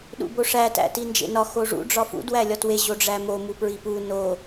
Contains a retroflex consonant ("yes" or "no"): yes